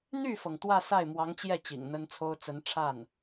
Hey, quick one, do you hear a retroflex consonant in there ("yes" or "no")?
yes